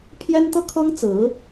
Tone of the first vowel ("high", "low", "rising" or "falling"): high